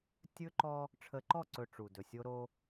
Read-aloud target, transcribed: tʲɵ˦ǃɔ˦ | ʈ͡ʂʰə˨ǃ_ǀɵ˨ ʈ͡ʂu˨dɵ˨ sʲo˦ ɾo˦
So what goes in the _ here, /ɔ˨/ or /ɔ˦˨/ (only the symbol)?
ɔ˦˨